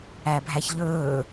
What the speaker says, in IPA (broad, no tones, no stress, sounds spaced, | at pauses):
æ bʱ æ ç ʎ ɵː